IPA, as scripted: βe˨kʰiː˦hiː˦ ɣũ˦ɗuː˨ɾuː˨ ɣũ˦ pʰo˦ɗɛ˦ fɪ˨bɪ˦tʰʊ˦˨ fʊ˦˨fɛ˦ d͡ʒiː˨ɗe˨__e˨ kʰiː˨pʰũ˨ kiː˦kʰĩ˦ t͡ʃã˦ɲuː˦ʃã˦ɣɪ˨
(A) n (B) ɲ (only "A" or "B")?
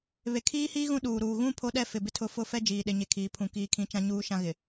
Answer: B